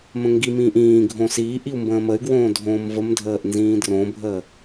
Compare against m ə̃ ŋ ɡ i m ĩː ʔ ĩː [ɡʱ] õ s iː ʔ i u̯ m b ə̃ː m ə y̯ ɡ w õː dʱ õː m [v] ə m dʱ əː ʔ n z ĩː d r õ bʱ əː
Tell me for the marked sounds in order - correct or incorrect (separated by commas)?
correct, correct